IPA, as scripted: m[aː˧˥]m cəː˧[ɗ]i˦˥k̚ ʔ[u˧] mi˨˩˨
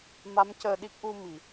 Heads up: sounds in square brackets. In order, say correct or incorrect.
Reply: incorrect: a˧˥, correct, correct

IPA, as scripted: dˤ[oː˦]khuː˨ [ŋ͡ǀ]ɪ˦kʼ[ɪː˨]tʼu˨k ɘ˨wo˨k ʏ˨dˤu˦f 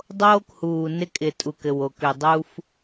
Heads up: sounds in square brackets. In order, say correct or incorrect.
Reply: correct, incorrect: n, incorrect: ɪ˨

